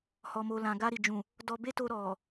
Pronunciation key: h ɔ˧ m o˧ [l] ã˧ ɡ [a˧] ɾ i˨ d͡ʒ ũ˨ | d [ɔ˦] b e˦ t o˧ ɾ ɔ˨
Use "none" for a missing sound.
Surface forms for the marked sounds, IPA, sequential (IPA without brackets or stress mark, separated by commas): l, a˧, ɔ˧